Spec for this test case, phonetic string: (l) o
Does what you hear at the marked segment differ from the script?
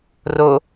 yes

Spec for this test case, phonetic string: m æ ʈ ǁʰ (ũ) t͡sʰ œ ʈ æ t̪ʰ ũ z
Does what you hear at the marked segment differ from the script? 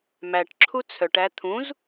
yes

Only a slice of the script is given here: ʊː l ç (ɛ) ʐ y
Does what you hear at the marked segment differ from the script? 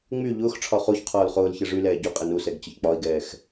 no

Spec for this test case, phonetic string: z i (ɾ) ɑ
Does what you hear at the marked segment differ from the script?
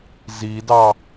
yes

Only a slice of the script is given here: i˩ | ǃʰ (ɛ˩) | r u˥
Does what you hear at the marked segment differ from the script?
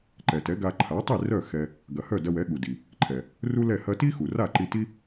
no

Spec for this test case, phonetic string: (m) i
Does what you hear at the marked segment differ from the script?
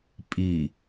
yes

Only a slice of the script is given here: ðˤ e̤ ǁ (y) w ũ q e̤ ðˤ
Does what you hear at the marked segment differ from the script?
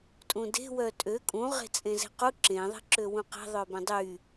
yes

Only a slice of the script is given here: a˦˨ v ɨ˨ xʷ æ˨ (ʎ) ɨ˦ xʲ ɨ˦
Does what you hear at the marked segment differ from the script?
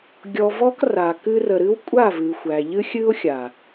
no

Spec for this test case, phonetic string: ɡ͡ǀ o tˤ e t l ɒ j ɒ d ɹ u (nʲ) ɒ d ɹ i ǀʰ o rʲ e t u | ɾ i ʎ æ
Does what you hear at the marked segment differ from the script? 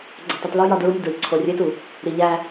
no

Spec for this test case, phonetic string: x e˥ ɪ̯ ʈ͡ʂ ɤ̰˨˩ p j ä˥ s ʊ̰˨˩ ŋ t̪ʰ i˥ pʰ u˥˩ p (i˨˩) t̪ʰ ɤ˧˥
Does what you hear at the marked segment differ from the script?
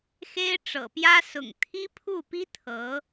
yes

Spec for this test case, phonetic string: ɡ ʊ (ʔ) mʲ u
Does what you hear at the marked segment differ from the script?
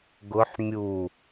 yes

